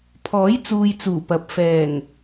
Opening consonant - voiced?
no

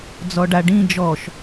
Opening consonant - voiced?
yes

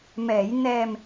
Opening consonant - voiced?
yes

